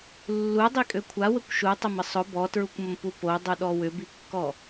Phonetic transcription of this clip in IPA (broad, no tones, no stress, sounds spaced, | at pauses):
lː u dˤ i kʼ ø kʷʰ a w ə kʷ ʃ u tˤ ɐ m ə sˤ ʊ b ɔ t ɹ u kʷ m ə m p u p o dˤ u ɗ ɔ w ʏ b i kː ɔ